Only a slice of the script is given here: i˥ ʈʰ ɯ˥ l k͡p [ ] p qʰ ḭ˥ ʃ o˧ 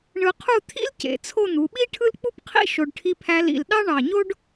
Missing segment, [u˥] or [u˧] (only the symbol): u˥